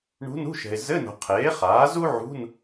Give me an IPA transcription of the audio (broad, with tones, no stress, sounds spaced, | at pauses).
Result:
ɳ ṳ˧˥ n ṳ˧˥˧ ʃ ɛ̤˨ ɪ̯ z ɘ˧˥˧ n o̤˨ qʰ eː˩˥ χ aː˩˥ z u˥ ʕ ṳ˧˥˧ n